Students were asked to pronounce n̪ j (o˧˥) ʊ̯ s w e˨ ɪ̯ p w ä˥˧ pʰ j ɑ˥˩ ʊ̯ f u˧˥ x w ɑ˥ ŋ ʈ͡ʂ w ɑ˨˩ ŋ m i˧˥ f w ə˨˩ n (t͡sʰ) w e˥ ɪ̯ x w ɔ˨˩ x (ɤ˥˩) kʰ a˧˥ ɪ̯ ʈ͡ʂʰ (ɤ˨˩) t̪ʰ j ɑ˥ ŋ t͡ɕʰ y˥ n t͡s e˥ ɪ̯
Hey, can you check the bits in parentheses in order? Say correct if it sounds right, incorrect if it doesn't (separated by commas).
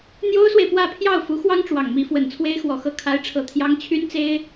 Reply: incorrect, correct, correct, correct